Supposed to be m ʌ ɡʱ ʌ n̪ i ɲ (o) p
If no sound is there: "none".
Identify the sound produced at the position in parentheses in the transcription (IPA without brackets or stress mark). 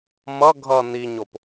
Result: o